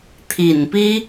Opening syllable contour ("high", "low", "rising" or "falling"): low